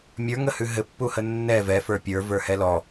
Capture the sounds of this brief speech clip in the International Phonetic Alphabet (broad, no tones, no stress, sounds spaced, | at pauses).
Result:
mʲ ə˞ ŋ ə h ʉ ɦ ɘ pː u h ə nː ɛ v ɛ f ə˞ pʲ ə˞ v ə˞ h ɛ l ɔ